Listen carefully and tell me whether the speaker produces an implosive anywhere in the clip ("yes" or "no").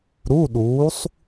yes